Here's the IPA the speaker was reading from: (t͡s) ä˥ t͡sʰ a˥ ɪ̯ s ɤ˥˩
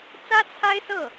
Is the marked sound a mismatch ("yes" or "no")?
no